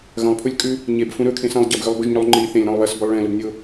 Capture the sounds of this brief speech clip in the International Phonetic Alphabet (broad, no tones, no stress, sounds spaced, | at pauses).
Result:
ɣ ɐ̃ lˠ pʰ u lʲ kʼ ʉ | ɲ e b f ũ ɾ ɵ kʰ ẽ s ɐ̃ lˠ ɟ ɐ b ɣ ʉ lˠ b ɵ ʒ ɲ u lˠ ŋ͡ǃ i θ ẽ lʲ ɾ ɐ̃ lˠ β ɐ s b ɵ lˠ ɭ ẽ l ɵ b nʲ o